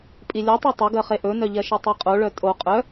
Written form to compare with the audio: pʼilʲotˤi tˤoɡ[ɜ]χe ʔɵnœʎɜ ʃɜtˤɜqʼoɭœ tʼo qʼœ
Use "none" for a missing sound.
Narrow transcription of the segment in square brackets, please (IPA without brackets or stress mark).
ɜ